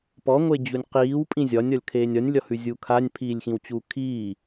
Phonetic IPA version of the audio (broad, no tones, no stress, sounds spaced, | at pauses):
p ɔ ŋʷ e d͡ʑ u nʲ q iː w pʼ ĩ zʲ ɒ nʲ ɒ lʲ kʰ eː nʲ ɒ nʲ lʲ ɒ h ʉ zʲ u kʰ a nʲ pʰ iː lʲ x ĩ w t͡ɕ uː kʰ iː